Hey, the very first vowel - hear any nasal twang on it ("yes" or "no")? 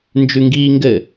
no